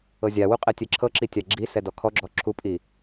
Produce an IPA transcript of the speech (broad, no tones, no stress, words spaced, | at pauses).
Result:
ɤzʲawu qʼɛtʲɛǁʰɤǁi tʲaɡ͡ǁisɛ dɔkʰɔɡ͡ǁɔ ǁʰupʼi